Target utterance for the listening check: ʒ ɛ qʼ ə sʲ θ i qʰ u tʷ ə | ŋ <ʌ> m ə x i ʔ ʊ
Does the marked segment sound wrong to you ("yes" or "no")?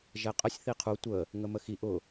yes